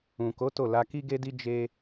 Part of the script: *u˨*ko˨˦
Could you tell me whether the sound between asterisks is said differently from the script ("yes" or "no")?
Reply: yes